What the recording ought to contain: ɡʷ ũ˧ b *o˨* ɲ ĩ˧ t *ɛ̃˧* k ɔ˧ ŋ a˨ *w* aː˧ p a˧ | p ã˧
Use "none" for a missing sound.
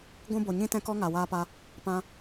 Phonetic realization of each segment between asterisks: o˨, ɛ̃˧, w

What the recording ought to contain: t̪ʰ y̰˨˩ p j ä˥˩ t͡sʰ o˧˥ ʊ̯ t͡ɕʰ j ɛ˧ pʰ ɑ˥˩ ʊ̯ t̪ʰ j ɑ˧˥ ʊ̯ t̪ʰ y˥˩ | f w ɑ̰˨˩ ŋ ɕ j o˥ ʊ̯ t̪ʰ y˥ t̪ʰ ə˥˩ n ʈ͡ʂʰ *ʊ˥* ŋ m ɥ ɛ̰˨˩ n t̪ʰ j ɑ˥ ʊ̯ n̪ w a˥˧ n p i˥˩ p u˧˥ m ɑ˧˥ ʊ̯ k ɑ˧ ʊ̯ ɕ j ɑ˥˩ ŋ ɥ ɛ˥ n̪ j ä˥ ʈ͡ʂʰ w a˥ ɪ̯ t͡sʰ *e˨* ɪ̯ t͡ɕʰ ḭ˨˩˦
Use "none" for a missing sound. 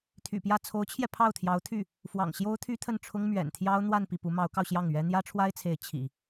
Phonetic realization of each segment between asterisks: ʊ˥, e˧˥

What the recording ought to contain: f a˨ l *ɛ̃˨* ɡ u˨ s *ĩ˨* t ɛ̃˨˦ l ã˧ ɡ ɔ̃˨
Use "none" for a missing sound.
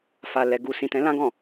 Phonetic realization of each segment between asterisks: ɛ˨, ĩ˨

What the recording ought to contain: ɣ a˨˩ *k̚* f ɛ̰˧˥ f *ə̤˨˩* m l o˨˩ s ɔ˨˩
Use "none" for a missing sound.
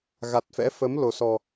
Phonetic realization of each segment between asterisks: t̚, ə˨˦

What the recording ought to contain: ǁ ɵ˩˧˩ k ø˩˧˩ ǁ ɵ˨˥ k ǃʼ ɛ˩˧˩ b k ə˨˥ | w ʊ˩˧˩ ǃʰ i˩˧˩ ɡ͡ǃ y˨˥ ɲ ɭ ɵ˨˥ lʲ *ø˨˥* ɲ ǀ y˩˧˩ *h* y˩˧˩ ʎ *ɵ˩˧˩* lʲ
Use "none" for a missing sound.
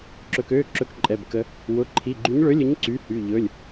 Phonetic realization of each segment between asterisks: ɵ˨˥, h, ɵ˩˧˩

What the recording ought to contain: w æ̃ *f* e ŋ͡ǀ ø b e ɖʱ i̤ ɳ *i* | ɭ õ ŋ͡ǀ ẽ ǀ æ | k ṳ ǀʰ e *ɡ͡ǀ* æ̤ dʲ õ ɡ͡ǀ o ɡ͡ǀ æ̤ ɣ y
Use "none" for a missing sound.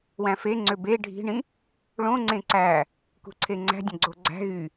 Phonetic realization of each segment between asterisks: f, ĩ, ŋ͡ǀ

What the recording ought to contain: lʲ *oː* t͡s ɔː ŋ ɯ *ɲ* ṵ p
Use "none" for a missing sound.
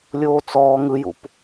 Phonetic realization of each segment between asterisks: oː, j

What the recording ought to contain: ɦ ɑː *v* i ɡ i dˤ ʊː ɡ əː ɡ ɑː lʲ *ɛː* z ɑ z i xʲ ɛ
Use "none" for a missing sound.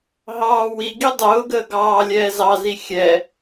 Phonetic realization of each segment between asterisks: w, ɛː

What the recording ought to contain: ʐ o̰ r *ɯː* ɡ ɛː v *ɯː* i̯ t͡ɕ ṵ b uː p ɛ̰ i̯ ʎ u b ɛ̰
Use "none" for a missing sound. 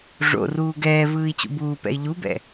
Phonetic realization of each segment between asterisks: uː, ɯː

